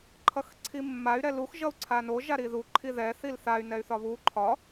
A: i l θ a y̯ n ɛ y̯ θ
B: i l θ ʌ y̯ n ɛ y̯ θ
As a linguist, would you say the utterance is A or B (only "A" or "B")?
A